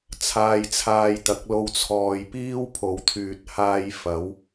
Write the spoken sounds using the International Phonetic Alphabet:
t͡sʰ aː˧ j t͡sʰ aː˧ j t̪ ɐ˨˥ k̚ l o˧ w t͡sʰ ɔː˨ j p iː˥ w pʰ o˨˧ w t̪ʰ yː˨ t̚ h aː˧ j f ɐ˨˥ w

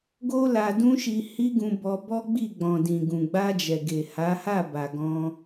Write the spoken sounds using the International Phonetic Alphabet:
ɡ o˦ l a˧ d ũ˦ ʃ i˧ h i˦ ɡ ũ˧ b ɔ˧ b ɔ˦ ɡ͡b i˦˨ ɡ͡b ɔ̃˨ d ĩ˨ ɡ ũ˨ ɡ͡b a˧ d͡ʒ ɛ˨ ɡ e˨ h a˨˦ h a˦˨ b a˨ ɡ ɔ̃˧

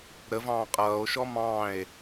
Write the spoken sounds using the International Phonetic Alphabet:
ɾ ə v ɑ̃ː qʼ ʌː o̯ ʃ ɔ m ɑ̃ e̯

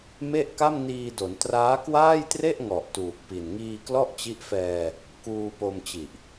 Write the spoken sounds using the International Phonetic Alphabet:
m e˥˩ ʔ k a˥˩ m n iː˧ d o˩˦ n t r aː˦˥ k w aː˥˩ j t r e˥˩ ʔ ŋ ɔ˨˩ ʔ t uː˨˩ k̚ p i˨˩ n ŋ iː˧ k l ɔ˥˩ ʔ t͡ɕ i˦˥ ʔ f ɛː˧ | k uː˧ p o˧ m t͡ɕ i˨˩ ʔ

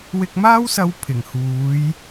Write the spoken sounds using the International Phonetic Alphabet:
w ɪ˧ k̚ m aː˥ w s ɐ˧ w pʰ ɪ˨˩ ŋ h uː˨˧ j

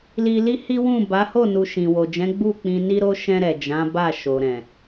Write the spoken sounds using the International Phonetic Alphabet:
l i˧ l i˦ h i˦ w ũ˦˨ b a˨˦ h o˦˨ n u˨ ʃ ĩ˨ w o˨ d͡ʒ ɛ̃˨˦ ɡ͡b u˦˨ k͡p ĩ˧ n i˦ ɾ o˦ ʃ ɛ̃˧ ɾ ɛ˨ d͡ʒ ã˨˦ b a˦˨ ʃ o˨ ɾ ɛ̃˨

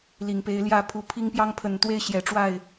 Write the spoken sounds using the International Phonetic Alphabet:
l i˨˩ ŋ p e˨˦ ɪ̯ l j ä˥˨ pʰ u˨˦ pʰ i˦ ŋ p j ɑ˦ ŋ pʰ ə˨˩ n t̪ w e˥˨ ɪ̯ ɕ j ɛ˨˩ ʈ͡ʂ w a˥˨ ɪ̯

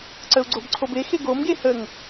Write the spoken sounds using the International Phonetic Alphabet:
ǀ ə u̯ ɡ͡ǀ o b ǀʰ o b e x e ɡ o m ɡ e h ə ŋ

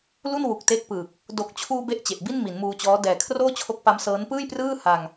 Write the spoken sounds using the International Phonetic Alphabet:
l u˥˩ n w u˨˩ k̚ t e˦˥ k̚ p ɯː˨˩ k̚ | d o˨˩ k̚ t͡ɕʰ uː˧ b e˥˩ ʔ t͡ɕ e˨˩ ʔ b i˥˩ n m i˩˦ n m uː˧ t͡ɕ ɔː˦˥ d ɛː˨˩ kʰ r oː˥˩ t͡ɕʰ o˦˥ k̚ p a˦˥ m s ɤː˦˥ n p ɯː˥˩ j p r ɯː˥˩ h a˧ ŋ

